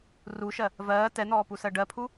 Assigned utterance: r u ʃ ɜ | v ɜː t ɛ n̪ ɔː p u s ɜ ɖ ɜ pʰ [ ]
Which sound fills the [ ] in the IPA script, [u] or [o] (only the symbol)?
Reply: u